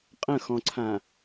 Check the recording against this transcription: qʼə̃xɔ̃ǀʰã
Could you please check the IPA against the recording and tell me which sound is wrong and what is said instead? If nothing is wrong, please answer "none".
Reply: none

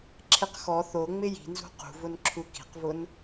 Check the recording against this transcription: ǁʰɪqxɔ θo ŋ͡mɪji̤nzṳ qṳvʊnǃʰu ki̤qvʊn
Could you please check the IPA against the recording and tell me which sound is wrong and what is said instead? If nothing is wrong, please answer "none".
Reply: ǃʰ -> ǁʰ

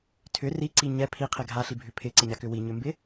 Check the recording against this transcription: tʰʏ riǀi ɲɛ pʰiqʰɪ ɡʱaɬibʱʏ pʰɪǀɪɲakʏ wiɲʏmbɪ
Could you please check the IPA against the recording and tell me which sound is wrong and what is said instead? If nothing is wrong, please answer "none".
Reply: none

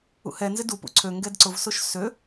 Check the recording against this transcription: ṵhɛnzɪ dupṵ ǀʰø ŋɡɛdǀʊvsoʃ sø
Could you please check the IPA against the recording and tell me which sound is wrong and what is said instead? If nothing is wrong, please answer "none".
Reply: none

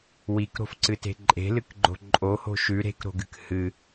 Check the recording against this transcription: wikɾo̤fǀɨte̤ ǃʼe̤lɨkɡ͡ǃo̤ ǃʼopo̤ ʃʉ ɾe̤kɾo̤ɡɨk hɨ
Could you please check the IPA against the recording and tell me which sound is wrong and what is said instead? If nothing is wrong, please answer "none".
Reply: p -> h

